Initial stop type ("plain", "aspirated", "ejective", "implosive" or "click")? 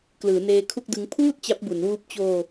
plain